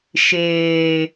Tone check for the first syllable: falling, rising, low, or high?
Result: low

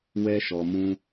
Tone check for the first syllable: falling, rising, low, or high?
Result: high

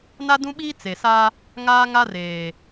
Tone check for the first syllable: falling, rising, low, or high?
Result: high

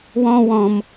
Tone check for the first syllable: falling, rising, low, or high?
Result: high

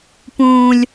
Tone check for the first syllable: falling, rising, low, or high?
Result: low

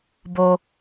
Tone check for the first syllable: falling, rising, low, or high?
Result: low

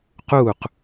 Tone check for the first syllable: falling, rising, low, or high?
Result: falling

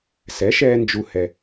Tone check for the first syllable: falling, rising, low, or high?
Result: rising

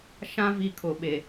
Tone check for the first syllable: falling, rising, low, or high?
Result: high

